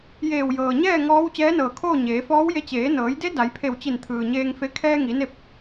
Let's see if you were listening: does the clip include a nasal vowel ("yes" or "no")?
no